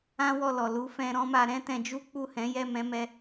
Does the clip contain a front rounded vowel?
no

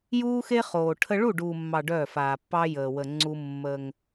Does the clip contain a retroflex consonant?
yes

